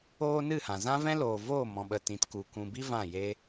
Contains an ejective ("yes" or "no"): no